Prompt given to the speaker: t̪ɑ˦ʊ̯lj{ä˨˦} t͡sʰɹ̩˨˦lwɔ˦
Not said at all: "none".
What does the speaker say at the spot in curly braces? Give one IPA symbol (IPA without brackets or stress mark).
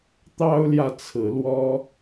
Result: ä˨